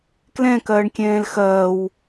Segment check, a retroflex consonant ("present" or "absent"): present